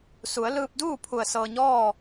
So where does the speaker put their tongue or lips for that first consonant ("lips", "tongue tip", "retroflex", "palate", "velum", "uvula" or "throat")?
tongue tip